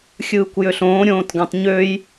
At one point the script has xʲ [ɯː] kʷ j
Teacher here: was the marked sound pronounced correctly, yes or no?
yes